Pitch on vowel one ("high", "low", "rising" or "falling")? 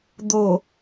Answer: low